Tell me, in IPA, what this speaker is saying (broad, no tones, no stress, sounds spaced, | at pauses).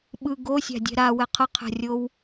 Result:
ɓ ɯ ɡ o sʲ a̤ dʲ ɛ̤ ɾ a w ɛ qʰ ʌ qʰ a̤ rʲ o w